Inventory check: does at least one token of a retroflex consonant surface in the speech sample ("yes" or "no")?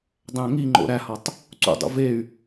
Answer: no